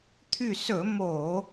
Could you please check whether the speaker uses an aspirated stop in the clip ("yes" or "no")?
yes